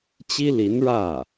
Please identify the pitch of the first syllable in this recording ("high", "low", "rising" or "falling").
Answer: high